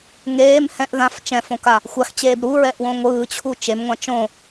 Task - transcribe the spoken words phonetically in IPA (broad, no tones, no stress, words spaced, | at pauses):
ŋeːm hɛ̃ʔ ðãf t͡ʃɛ̃fõka | xʷaxt͡ɕeːb ɾuɹɛʔwõ ŋʷɯːt͡ɕʰu t͡ʃemŋʷã t͡ʃõ